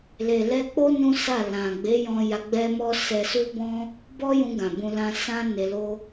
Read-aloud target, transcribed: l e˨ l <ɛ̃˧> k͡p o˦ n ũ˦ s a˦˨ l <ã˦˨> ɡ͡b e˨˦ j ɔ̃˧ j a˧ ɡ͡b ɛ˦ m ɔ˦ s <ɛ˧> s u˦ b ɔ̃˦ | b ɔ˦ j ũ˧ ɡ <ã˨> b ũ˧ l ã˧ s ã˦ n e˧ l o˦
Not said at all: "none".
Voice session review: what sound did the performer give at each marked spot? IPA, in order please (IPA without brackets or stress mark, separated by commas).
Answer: ɛ˧, ã˨, ɛ˧, ã˨